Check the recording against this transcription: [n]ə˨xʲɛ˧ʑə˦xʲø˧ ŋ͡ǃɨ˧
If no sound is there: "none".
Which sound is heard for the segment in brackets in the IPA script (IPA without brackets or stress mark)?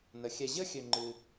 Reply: n